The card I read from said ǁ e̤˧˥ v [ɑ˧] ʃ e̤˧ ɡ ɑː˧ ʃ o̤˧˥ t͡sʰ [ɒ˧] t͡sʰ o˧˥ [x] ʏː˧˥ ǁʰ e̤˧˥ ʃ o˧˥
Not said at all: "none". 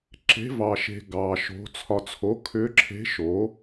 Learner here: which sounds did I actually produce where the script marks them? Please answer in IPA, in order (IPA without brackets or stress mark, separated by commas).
ɑ˧, ɒ˧, kʰ